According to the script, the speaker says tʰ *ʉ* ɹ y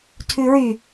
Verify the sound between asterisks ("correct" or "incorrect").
correct